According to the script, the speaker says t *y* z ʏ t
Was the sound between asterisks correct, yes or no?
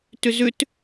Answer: no